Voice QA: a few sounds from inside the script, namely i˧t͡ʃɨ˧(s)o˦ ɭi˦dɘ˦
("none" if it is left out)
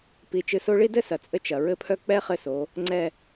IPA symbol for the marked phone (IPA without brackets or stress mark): s